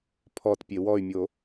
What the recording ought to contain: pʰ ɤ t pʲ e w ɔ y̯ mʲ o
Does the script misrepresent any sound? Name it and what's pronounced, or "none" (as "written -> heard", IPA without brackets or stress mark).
ɤ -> ɔ